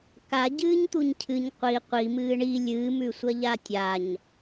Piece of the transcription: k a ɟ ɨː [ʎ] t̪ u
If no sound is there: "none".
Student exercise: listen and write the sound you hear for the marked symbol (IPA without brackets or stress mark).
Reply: ɲ